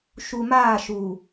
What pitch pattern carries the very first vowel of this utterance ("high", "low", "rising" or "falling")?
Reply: low